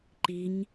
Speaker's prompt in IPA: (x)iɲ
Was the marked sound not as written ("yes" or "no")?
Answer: yes